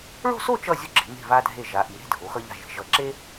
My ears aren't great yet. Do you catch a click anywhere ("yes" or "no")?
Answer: yes